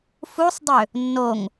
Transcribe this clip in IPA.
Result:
f u sˤ dˤ ø | nː o ŋ

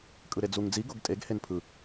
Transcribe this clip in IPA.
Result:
kʼ ɯ ɾ e d͡z u ŋ d͡z i ɡ o ɡ tʼ e ɡ h e n pʰ ɯ

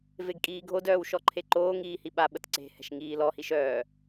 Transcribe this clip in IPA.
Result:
v e ɡ kʼ iː ɡʱ o d œː w ʃ ɔ ǃʰ e ǃ oː ŋ iː h i ɓ a ɓ ə t ǀ e̤ h ɛ̤ ʃ ŋ iː l ɔ h i ʃ œː

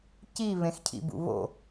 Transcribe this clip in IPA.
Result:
c i β ẽ x cʰ ḭ b ṵ β o̰

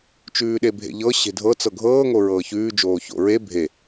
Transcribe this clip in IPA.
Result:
t͡ʃ ʉː ɗ e bʱ ḛ ʎ ɤ ɕ e̤ dʱ ɤ t͡s ɤ ɡʱ ɤː ŋ o ɹ ɤː ç ʉː d͡ʒ oː ç o̰ ɹ e bʱ e

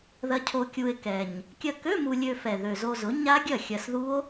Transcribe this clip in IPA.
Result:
ð ɐ˧ cʰ o˧ kʲ u˧ e̯ k ɛ˨˩ ɲ | kʲ ɐ˧ k ø˧˥˧ m u˧ lʲ ø˧ f ɛ˨˩ ð ø˨˩ z o˧ z ʊ˩˥ ɲ a˦˥ ɡʲ ɐ˥˩ xʲ ɐ˧ s ð u˦˥ o̯

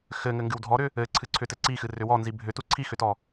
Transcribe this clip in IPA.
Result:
x ɘ ŋ ɘ ŋ ɡ ɨ w dʱ ɔ ɾ ʏ | ɘ ǀʰ ɨ ǀʰ ʏ t ɘ ǀ i x ɨ r ʏ w ɔ n z i bʱ ʏ t u ǀʰ i x ʏ t ɔ

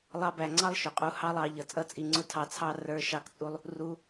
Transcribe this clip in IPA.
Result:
lˠ ɑ˧ b æ˨ ŋ͡ǀ ɑ˦ lˠ ʃ ʊ˨ qʼ u˧ h ɑ˦ lˠ ɑ˧ ʎ ʌ˨ t͡sʼ ʌ˦ t͡sʼ i˨ ŋ͡ǀ ʊ˦ tʰ ɑ˧ t͡sʰ ɑ˦ r ə˞˧ ʃ ɑ˦ k t͡sʼ u˦ lˠ | r u˧

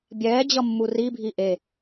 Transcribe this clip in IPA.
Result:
bʲ ɛː d͡ʑ ʌ mː u r i bʱ i ʔ e

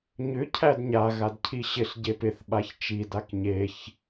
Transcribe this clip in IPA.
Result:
ɲ ʏ cʰ æ d ɲ a ɣ a d cʰ i ɕ ɪ ɬ ɟ e p ɪ θ ɓ a ç t͡ʃ i d a k ɲ e ç

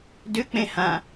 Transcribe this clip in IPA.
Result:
d ʏ k͡p ẽ h ã

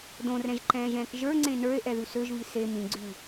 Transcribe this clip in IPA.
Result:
d õ r ɛ̃ ʒ ǃ ɛ̃ː ʒ ɛ̃ː k ʒ ə˞ ŋ͡ǀ ẽ n ə˞ e̯ ʔ ɛ ð ʉ s ø ʒ v i s e m ĩ ɡ͡ǀ ʉ

